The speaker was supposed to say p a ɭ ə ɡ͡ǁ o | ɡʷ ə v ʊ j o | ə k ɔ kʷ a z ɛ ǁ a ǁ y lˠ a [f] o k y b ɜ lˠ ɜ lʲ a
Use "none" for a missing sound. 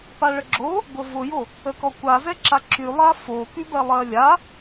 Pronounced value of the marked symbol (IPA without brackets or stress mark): f